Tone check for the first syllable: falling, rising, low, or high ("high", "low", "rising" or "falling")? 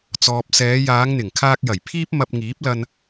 low